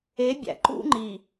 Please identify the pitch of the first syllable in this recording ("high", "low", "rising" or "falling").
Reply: rising